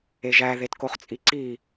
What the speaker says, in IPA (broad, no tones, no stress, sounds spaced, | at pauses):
e ʒ æ ð e t k o χ t͡sʼ i ǀ i